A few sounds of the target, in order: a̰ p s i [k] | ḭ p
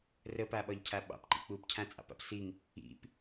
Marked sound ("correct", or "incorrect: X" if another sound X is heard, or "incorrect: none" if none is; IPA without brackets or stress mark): incorrect: ŋ